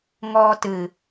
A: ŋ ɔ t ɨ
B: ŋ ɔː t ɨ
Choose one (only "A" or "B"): B